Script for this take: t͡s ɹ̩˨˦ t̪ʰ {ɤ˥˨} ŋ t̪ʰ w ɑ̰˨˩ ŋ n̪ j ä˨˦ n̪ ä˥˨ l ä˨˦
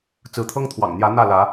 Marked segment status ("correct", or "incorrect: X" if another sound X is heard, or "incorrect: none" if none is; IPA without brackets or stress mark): incorrect: ɤ˦